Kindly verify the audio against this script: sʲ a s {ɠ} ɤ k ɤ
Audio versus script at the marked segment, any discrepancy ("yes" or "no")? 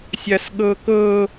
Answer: no